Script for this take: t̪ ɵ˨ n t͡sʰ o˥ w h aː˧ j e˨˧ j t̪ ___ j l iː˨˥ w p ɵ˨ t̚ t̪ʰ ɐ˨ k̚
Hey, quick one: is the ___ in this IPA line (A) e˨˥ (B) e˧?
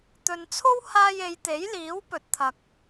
A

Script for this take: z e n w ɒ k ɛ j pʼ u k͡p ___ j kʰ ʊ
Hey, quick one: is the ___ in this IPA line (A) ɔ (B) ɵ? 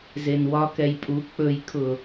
B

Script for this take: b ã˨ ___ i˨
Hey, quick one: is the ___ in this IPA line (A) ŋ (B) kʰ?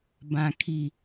B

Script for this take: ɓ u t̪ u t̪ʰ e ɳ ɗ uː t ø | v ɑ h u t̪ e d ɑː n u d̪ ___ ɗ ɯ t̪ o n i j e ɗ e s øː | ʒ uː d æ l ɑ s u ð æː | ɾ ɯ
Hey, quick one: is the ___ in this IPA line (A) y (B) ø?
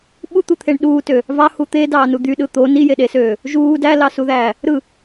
A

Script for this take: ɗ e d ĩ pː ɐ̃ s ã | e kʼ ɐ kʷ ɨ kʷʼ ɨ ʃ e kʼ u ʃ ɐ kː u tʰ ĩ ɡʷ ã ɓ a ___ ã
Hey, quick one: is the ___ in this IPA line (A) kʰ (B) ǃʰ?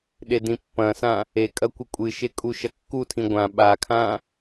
A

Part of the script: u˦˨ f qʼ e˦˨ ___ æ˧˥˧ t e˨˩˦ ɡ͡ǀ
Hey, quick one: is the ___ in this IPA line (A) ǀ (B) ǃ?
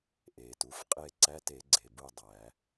A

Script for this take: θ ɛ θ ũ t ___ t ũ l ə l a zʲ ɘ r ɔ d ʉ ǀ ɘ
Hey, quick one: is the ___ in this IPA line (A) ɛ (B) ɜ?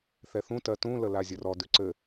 B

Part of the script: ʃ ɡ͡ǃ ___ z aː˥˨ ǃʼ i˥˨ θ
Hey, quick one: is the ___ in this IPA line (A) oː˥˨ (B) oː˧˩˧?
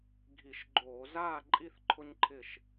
B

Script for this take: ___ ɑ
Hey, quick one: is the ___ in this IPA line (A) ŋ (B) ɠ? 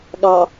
B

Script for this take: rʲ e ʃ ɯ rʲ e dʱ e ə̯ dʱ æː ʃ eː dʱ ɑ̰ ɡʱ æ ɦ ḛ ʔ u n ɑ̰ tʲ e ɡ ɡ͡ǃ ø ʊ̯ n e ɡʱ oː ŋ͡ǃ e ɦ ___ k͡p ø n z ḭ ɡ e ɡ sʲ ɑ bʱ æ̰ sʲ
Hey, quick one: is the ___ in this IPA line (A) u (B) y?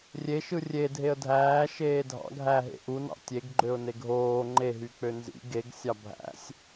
B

